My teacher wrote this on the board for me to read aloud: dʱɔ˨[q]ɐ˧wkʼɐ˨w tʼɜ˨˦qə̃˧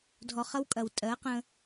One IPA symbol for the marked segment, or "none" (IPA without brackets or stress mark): χ